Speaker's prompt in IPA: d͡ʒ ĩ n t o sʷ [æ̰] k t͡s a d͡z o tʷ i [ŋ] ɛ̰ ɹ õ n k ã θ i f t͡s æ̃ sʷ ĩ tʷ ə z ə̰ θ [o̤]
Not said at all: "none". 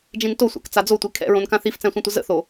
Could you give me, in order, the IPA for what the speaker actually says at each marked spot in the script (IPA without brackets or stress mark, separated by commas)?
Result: æ̰, kʰ, o